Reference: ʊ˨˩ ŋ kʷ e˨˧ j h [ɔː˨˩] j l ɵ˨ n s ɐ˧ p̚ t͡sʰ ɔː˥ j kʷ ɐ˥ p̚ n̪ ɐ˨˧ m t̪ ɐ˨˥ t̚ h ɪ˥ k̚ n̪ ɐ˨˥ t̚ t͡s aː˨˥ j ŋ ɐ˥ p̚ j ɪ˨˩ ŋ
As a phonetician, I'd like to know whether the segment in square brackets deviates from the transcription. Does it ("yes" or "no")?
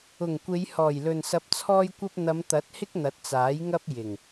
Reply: no